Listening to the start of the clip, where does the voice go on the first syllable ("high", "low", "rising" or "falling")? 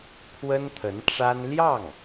high